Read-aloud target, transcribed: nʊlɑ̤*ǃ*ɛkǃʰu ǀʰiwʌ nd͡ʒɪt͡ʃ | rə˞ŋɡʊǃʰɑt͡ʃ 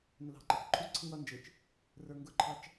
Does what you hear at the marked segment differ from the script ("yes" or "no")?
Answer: no